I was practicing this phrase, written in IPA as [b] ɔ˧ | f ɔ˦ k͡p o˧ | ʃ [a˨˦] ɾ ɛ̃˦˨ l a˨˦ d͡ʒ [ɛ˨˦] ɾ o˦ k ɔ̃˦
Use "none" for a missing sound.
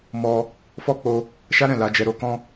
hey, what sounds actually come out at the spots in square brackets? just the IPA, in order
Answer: m, a˦, ɛ˧

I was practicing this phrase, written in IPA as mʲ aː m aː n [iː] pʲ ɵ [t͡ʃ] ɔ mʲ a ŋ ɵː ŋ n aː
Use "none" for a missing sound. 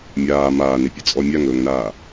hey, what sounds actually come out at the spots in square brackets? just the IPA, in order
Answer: i, t͡sʼ

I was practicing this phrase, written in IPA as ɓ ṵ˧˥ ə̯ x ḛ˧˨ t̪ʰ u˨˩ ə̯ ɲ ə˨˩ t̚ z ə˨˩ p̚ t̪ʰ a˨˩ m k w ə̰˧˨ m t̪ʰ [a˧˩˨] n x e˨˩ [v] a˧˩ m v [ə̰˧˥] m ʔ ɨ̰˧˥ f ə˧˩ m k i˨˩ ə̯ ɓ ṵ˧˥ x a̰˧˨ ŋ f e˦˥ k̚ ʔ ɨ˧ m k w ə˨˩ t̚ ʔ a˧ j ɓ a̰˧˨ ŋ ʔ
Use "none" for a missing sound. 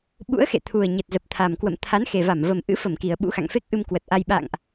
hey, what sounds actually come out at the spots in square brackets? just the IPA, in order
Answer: a˨˦, v, ə˨˩

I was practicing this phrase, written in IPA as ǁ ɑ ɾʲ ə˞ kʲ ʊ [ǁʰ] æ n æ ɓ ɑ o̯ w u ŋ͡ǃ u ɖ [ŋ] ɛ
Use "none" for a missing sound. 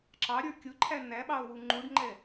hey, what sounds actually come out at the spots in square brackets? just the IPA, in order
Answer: ǃʰ, ŋ͡ǃ

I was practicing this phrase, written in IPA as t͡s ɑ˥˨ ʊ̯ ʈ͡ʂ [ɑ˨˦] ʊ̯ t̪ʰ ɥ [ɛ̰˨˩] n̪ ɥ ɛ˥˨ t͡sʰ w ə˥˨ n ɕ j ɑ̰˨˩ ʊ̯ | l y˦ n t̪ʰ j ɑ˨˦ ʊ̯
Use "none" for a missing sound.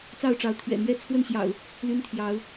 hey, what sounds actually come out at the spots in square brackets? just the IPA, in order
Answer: ɑ˨˦, ɛ̰˨˩

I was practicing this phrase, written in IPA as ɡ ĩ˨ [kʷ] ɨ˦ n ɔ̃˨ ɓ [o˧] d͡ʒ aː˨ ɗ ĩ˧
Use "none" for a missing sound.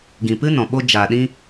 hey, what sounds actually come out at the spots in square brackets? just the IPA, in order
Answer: p, o˧

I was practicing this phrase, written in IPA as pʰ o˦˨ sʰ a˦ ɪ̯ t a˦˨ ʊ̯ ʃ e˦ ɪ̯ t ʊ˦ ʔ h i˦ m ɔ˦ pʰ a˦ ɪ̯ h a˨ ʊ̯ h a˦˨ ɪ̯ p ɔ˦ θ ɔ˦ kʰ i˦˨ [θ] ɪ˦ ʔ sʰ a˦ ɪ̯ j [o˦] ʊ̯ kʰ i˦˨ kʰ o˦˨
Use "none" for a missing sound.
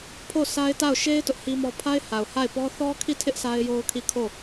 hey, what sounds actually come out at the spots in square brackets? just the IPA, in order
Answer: tʰ, o˦

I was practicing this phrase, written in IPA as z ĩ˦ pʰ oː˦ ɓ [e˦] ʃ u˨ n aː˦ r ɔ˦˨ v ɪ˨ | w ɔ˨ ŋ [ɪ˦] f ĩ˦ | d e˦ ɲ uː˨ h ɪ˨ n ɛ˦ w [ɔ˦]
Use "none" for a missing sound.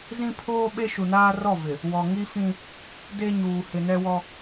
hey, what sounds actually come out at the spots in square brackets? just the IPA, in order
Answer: e˦, i˦, ɔ˦

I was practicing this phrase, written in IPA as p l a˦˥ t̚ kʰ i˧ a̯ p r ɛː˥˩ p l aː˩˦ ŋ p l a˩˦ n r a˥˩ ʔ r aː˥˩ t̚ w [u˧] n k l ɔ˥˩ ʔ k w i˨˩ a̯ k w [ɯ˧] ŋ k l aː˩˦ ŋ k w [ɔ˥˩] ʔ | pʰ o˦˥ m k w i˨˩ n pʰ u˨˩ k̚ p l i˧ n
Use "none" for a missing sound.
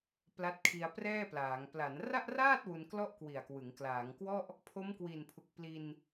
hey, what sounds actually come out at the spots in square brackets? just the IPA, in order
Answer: u˧, ɯ˩˦, ɔ˥˩

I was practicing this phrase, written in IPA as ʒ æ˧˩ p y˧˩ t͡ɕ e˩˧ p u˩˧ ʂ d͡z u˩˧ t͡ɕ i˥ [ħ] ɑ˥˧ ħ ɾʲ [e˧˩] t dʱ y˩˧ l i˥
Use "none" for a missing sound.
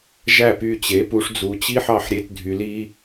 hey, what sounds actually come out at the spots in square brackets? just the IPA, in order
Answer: ħ, e˧

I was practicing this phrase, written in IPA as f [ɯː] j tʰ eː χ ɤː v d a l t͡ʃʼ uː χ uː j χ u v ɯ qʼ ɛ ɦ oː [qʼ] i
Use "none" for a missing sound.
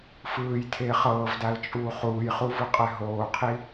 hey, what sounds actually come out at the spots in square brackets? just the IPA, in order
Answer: ɯː, qʰ

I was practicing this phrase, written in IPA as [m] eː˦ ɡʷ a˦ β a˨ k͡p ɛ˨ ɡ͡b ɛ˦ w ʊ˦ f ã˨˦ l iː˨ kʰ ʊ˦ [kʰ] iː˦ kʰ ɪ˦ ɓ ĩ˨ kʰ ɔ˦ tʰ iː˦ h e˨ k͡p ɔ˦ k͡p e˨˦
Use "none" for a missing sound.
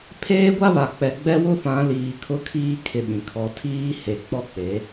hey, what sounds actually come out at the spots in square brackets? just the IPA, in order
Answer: pʰ, kʰ

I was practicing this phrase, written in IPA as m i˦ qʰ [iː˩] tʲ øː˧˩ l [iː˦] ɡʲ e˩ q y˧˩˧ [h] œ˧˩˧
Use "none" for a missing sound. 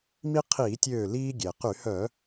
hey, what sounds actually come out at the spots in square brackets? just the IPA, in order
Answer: iː˧˩˧, iː˦, h

